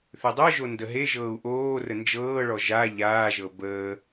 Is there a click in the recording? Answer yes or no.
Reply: no